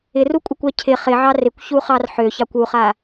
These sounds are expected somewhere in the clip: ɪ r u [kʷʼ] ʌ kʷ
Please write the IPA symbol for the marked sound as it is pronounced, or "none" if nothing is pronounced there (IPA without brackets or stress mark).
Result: kʷʼ